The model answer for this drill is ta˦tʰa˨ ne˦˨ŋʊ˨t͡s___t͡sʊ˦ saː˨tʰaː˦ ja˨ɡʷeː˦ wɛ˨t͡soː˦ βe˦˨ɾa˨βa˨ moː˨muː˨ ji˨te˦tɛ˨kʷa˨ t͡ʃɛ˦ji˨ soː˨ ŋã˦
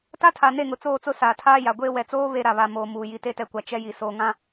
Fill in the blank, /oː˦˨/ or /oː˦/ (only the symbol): oː˦˨